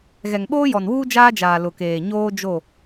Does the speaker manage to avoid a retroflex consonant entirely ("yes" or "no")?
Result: yes